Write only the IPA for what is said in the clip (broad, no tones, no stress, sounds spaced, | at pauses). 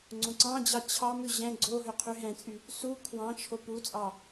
ŋ͡ǀ õ ǀ ɑ̃ d͡ʑ ɑ t͡ɕʰ ɑ m ʉ ʑ ɛ̃ ɡ͡ǀ o ɦ ø qʰ y ɦ ɛ̃ t͡sʼ y | s u kʰ w ɑ̃ t͡ʃʰ o p u t͡sʼ ɑ